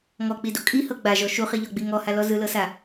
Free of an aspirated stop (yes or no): yes